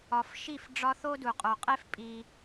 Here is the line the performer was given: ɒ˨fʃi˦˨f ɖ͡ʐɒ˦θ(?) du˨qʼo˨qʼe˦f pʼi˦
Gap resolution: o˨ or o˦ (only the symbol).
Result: o˦